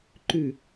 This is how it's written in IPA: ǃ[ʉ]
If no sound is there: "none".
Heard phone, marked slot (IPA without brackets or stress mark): ʉ